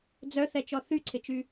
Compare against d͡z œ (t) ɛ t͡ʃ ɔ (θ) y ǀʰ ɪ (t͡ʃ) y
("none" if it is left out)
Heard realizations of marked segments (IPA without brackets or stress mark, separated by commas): θ, θ, t͡ʃ